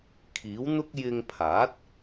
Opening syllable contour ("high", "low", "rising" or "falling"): rising